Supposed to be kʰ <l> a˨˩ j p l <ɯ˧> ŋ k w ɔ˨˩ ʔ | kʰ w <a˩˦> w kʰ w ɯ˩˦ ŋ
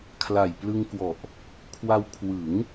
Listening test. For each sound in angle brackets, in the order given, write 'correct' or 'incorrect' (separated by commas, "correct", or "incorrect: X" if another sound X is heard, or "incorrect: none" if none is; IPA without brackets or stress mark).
correct, correct, incorrect: a˧